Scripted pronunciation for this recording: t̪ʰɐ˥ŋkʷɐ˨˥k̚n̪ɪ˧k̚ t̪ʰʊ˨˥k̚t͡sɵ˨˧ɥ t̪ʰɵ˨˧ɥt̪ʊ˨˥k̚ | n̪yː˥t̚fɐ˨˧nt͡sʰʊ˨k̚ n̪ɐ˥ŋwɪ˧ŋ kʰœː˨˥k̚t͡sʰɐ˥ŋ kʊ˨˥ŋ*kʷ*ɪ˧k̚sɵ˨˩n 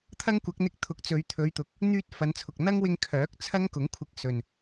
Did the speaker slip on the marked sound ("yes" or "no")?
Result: yes